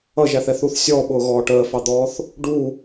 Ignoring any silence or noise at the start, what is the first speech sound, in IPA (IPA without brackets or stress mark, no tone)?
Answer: ʌ